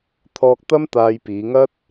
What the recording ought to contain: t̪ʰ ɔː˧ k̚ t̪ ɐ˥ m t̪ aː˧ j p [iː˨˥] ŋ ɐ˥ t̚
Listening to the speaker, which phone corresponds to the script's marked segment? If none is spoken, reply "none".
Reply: iː˨˧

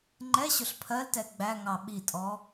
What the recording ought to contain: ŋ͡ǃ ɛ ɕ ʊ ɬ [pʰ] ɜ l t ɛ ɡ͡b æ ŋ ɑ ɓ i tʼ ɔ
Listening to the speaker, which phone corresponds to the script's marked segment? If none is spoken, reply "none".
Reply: pʰ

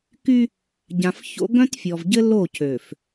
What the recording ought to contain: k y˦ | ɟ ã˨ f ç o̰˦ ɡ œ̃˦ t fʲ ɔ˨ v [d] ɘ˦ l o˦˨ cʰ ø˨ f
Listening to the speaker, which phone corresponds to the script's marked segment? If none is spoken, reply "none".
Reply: ɟ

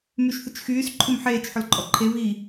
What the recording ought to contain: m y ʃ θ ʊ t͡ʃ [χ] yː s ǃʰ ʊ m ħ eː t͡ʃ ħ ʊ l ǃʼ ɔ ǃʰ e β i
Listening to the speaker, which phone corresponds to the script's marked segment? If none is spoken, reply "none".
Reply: x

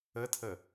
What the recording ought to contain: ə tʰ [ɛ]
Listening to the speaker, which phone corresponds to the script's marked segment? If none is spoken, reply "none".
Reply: ə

